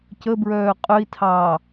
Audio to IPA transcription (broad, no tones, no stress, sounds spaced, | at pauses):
c ə b ɹ œː qʼ œ i̯ tʰ ɑː